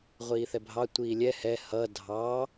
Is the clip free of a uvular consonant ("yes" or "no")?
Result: no